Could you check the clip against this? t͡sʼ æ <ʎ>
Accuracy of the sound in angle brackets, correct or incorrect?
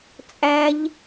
correct